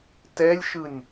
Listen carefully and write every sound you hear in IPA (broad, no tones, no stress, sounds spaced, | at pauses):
t ɛ lʲ ʃ ɯ nʲ